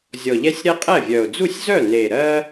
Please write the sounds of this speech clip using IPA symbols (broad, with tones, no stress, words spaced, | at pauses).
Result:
zʲɔ˨˩ʎɛ˦sʲ ɾɛ˦qʼɛ˥˩vʲœ˨˩ʊ̯ d͡zu˥˩sʲzœ˥˩ne˨˩ɾɜ˦